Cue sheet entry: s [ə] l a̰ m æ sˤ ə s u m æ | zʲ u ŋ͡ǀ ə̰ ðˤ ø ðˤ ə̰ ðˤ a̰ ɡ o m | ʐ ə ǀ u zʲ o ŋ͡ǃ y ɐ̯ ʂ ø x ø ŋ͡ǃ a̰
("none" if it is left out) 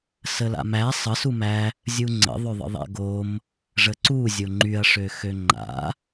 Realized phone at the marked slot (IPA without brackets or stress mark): ə